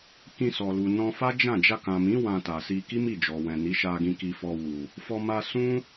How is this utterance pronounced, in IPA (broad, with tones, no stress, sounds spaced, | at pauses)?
k ĩ˧ s ɔ˨ l u˨ n ɔ̃˧ f a˦ d͡ʒ ã˦˨ d͡ʒ a˧ k ã˨ m ĩ˨˦ w ã˧ t a˨ s i˧ k i˦ m i˦˨ d͡ʒ ɔ˨ w ɛ̃˨ n i˨˦ ʃ a˧ ɡ ĩ˧ k i˧ f ɔ˧ w u˨ | f ɔ˧ m a˧ s ũ˦